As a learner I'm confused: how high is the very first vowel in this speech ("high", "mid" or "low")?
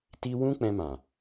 high